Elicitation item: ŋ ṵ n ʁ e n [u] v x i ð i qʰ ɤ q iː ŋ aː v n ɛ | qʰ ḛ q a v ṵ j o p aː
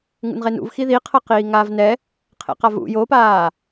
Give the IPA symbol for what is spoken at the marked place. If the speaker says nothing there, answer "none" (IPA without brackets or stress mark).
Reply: ṵ